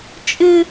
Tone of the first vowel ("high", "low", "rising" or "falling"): high